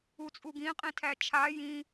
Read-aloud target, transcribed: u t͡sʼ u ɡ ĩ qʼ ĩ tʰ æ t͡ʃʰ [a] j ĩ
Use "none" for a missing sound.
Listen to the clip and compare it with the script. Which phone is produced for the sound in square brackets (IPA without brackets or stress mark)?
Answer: a